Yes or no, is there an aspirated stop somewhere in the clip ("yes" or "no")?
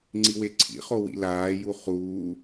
yes